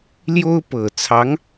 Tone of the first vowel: high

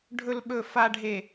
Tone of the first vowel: low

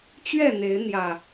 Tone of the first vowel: falling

